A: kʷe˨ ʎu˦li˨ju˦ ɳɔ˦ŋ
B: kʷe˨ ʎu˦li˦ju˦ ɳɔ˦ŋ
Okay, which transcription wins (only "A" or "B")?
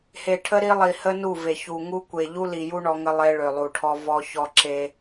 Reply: A